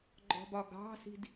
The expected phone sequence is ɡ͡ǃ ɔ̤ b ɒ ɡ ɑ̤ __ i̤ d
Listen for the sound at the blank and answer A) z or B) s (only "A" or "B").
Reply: B